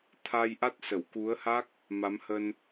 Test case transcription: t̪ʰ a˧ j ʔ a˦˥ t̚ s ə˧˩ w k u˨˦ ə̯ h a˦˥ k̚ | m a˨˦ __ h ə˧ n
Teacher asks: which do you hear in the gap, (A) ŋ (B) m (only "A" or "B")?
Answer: B